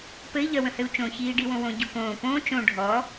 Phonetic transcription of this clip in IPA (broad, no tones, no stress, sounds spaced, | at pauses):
p ɘ i̯ ʎ œ w ə̃ h ɘ u̯ t͡ʃ õ ç iː ɖ i w õ w õ ɟ u k õː p õː t͡ʃ õ ɖʱ ɔ